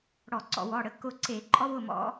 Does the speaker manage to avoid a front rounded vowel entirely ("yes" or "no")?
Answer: yes